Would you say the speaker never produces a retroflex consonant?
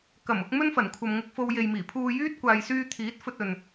yes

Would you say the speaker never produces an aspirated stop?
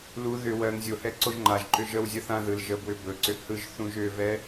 yes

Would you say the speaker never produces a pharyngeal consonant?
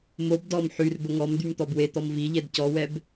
no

